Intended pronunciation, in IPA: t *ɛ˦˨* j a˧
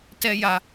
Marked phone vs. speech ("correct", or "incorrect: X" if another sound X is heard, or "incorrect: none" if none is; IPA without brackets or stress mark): incorrect: ɛ˦